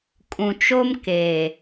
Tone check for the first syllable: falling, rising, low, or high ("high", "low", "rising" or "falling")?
low